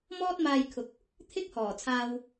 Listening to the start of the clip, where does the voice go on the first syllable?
high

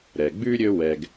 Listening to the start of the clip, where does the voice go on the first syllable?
low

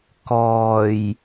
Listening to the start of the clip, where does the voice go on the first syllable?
low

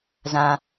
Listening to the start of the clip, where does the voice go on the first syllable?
high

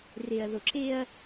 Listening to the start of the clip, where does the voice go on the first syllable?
low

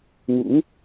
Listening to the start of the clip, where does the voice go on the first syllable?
rising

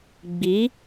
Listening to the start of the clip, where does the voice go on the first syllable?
rising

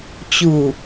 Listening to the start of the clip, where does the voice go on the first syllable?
low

